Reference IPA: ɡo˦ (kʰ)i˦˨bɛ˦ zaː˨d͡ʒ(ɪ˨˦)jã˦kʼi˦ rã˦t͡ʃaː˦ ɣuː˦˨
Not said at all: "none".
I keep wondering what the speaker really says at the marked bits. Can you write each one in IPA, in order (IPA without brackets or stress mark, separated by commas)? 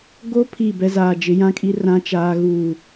pʰ, ɪ˨˦